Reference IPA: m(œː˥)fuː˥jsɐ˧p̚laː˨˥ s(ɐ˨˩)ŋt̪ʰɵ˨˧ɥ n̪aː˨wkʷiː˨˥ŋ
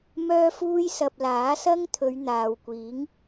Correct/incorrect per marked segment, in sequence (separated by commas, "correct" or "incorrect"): correct, incorrect